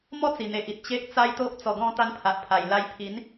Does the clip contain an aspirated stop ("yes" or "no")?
yes